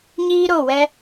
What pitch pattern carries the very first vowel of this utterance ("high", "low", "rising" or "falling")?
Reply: high